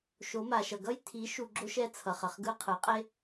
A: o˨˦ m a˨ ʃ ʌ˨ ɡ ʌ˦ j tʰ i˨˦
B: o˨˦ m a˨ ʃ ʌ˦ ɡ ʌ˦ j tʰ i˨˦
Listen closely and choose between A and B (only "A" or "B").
A